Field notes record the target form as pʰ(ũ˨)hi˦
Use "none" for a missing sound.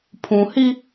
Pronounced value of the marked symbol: ũ˨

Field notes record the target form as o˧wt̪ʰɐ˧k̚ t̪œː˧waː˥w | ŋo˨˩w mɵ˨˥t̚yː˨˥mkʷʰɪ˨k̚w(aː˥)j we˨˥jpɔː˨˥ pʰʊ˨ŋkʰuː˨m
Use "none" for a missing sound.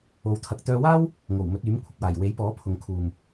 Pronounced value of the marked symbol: aː˨˩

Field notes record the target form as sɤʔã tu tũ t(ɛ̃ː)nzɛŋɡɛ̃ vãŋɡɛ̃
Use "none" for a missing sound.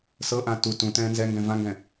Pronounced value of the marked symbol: ɛ̃ː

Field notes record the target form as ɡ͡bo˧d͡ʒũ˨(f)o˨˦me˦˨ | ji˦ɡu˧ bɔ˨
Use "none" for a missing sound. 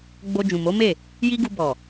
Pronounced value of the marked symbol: m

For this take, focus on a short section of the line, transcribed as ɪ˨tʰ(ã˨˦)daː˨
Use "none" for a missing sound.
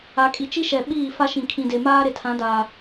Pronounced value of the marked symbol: ã˨˦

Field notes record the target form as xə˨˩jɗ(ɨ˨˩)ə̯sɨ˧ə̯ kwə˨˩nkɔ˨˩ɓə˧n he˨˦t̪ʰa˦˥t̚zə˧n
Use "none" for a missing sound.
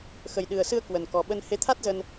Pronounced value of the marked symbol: ɨ˨˩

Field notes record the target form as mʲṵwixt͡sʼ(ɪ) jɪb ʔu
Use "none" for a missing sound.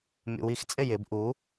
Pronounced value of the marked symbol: ɪ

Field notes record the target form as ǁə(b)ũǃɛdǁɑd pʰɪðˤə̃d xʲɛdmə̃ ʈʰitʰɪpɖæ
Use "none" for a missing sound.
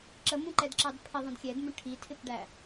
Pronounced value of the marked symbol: m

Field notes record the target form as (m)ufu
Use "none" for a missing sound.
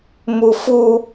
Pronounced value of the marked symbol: m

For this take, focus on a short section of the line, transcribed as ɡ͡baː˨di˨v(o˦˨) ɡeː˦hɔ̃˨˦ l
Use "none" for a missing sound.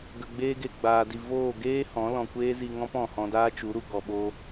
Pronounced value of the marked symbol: oː˦˨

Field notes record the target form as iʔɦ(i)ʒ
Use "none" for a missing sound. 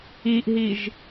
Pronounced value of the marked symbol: i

